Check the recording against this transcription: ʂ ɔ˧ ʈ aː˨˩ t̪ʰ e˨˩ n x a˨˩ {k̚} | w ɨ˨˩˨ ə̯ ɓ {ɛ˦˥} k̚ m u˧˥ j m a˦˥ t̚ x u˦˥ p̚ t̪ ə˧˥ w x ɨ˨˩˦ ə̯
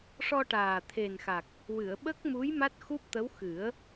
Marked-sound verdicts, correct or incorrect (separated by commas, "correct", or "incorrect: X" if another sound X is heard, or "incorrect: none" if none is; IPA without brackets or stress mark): correct, incorrect: ə˦˥